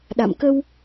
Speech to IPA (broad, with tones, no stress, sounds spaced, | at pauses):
ɗ a̰˧˨ m k ə˧ w